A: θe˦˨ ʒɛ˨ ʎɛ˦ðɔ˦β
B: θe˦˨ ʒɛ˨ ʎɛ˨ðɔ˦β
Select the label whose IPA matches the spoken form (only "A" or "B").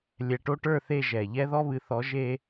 A